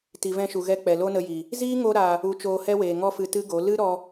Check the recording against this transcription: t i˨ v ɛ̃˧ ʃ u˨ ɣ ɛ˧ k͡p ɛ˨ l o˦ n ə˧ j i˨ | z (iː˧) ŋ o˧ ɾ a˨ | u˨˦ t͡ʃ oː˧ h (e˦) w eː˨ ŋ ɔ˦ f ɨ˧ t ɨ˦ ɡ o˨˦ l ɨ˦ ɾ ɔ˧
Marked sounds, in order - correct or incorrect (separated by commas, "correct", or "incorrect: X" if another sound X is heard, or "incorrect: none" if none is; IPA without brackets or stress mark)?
incorrect: iː˦, incorrect: ɛ˦